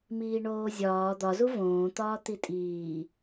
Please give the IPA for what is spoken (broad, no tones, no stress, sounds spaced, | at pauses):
m iː ɳ oː zʲ ɒː d̪ ɒ z u v õː t̪ ɒː t̪ i tʼ iː